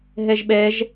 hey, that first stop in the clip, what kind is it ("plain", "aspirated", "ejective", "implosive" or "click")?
implosive